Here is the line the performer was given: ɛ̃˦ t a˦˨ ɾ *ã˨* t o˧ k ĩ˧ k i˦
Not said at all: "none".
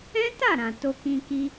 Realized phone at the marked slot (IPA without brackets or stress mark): ã˨